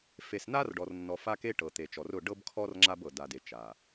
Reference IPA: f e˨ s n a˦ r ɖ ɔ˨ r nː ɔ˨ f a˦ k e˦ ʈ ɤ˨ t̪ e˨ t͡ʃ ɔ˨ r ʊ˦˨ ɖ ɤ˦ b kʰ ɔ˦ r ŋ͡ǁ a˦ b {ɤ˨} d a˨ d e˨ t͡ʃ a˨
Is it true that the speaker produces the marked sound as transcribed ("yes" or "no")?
yes